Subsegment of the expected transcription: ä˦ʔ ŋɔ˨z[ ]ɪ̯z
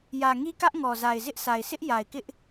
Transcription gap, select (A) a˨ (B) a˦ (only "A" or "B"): A